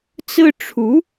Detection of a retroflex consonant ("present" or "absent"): present